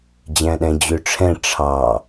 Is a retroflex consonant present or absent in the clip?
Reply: present